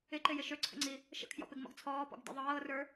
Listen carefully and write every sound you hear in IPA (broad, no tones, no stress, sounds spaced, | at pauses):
ɪ ǃ ɪ j ɪ ʃ ø ǀʰ ə̰ ŋ͡ǀ i | ʃ ə̰ kʰ j ɔ̰ p ɪ ɡ m ɔ̰ ɡ t͡sʰ ɔː p ɔ̰ ɡ d ḭ ðˤ ɤː r ə˞